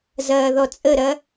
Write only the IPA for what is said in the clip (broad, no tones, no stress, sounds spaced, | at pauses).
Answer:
z ɐː ð ɔ t͡sʼ ə ɾ ɐ